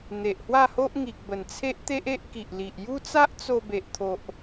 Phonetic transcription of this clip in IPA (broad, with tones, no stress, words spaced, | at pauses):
n̪e˨ʔhwa˥˧ho˦ʔ ŋi˨k̚bə˨˩nt͡sʰe˦ʔt̪e˦ʔ e˦ʔki˨ʔli˨ʔ ju˦t͡sa˦ʔt͡so˧ be˨ʔt̪ʰo˨ʔ